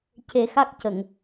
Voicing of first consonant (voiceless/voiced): voiceless